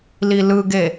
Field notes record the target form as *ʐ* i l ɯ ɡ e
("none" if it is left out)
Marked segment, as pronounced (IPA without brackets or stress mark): l